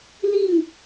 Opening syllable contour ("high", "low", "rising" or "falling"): falling